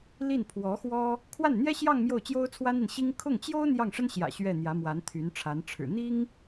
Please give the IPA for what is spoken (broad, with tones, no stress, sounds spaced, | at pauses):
l i˥˩ n pʰ w ɔ˧˥ x w ɔ˥ | kʰ w a˥˩ n n̪ j ɛ˥ ɕ j ɑ˥˧ ŋ m j o˥˩ ʊ̯ t͡ɕ j o˥ ʊ̯ t͡sʰ w a˥ n i˨ n ɕ i˥ ŋ kʰ ʊ˥˩ ŋ t͡ɕ j o˥ ʊ̯ n̪ j ɑ˥˩ ŋ ʂ ə˥ n ɕ j ä̰˨˩ ɕ ɥ ɛ˥˩ n̪ j ä˧˥ m w a˧˥ n t̪ʰ y˧˥ n ʈ͡ʂʰ a˧˥ n ʈ͡ʂʰ ɻ̩˨˩ n̪ i˥ ŋ